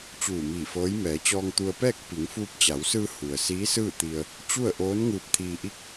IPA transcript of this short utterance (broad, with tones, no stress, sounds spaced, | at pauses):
t͡ɕ uː˧˩ m iː˧˩ f ɤː˧˥ j m ɛː˩˧ t͡ɕ ɔː˧ ŋ t̪ u˧ ə̯ p ɛː˥˨ k̚ p i˩˧ ŋ f uː˧ p̚ t͡ɕ a˩˧ w s ɯː˧ h u˩ ə̯ s iː˧˥ s ɯː˥˨ t̪ i˧ ə̯ | t͡ɕ u˥˨ ə̯ ʔ oː˧˥ n ŋ ɯː˧ p̚ t̪ʰ iː˧ ʔ i˥˨ k̚